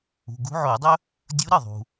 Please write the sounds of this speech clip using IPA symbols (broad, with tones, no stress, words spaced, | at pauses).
ṳ˩˧˩ɡṳ˧˥ʕo˧˩˧dˤɵ˥ | dʲu˧˥ɾɨ˥˩ ðˤṳ˩